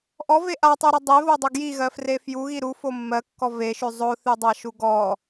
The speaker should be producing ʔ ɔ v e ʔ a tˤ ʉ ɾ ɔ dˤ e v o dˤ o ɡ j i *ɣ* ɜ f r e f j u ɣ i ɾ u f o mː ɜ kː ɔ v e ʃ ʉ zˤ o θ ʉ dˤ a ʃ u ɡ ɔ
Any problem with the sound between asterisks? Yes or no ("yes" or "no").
no